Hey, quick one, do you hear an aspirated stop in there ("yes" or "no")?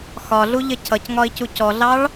yes